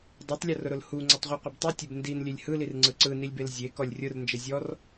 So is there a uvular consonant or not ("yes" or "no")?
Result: yes